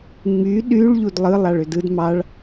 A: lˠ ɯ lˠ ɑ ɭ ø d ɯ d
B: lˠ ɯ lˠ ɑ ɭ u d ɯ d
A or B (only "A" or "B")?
A